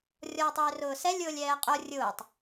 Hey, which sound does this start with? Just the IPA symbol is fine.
rʲ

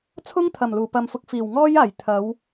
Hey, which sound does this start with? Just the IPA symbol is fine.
t͡sʰ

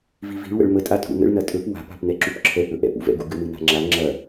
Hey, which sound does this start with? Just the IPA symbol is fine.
v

